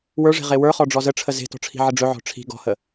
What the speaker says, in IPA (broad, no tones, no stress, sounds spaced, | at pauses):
w ə˞ ʐ e̤ ʁ e w ə˞ χ ɔ ɖ͡ʐ ɔ z ə ʈ͡ʂʰ ə z e̤ t ɔ̤ ʈ͡ʂʰ i̤ ʕ ə ɖ͡ʐ ɵ ʕ ɔ̤ ʈ͡ʂʰ i̤ ɡ ɔ̤ h ə